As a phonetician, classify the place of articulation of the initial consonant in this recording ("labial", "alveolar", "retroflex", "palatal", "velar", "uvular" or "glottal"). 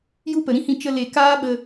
palatal